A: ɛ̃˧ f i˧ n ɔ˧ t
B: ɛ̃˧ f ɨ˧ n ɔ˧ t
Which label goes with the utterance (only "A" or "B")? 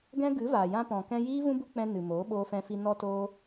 A